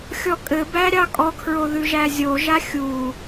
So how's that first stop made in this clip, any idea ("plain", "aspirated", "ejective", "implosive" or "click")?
ejective